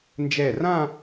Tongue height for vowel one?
mid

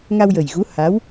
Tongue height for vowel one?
low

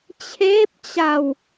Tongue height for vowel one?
mid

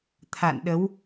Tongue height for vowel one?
low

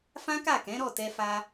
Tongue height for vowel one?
low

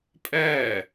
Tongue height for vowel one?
mid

